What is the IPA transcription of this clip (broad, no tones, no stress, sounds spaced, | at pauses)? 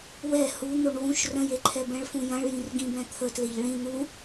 w ɛ h u n̪ o ɳ w ũ ʃ r ə̃ j e ǃʰ ɛ b ɛ̃ ɭ f ũ j ɐ̃ ɭ j ĩ r ɡ ĩ b ɛ̃ t̪ʰ ə t l e ʎ ɭ ĩ n̪ u